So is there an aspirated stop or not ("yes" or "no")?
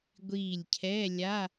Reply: yes